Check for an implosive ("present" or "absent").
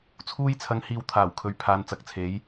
absent